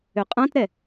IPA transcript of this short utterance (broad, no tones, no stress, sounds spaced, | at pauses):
ø qʼ ã t ɾ ɛ